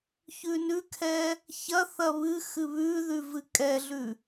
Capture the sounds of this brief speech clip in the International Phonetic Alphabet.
çʉnʉkʰɛ | çɐ θɐβɨxɨ βʉðʉ vɨkʼɛɮʉ

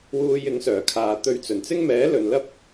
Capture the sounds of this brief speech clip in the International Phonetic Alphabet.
wuː˧jɪ˨˥ŋsœː˨˩ kʰaː˨t̪ɵ˧ɥ t͡sɵ˨˩nt͡sɪ˥ŋmɛː˨˥lɵ˨n lɐ˥p̚

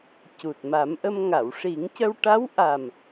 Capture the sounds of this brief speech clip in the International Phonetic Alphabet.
cu˨˩t̚ma˨˩˦mʔə˧m ŋa˨˩˨wʂi˨˩˦ŋcə˧w ʈa˧˥wʔa˨˩m

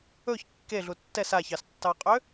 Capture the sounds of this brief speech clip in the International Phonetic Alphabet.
ɵç kːeɮu tːɛs açɑstːɑqʼø

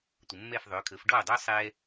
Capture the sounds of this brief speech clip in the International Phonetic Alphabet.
tʷə˩mːɛ˥˩f ðˤʏː˩˥kʰəː˩˥f ɖɔː˥˩dˤʏː˥sˤɛː˧

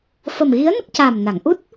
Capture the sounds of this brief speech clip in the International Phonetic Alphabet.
fə˨˩mɣi˧˥ə̯ nə˦˥k̚caː˨˩m na˨˩˨ŋʔu˦˥t̚

